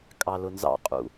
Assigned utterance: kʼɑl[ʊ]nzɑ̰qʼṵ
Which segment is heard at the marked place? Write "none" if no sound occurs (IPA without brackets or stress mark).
ʊ